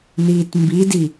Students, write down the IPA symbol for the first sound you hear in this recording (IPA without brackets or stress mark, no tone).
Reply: n̪